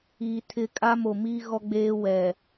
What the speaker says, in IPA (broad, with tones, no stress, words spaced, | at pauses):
iː˨tʰɪ˦˨ kʼa˦mo˨miː˦ ɣɔ˦ɡ͡beː˦ wɛ˨